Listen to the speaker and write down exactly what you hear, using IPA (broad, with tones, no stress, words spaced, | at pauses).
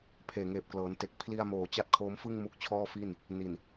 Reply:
pʰeː˨˩ŋeː˨˩p̚klɤː˩˦nte˨˩k̚ pʰli˧a̯moː˨˩ t͡ɕa˦˥t̚kʰoː˦˥mfɯ˥˩ŋ mu˦˥k̚t͡ɕʰɔː˥˩fi˥˩n | ni˨˩n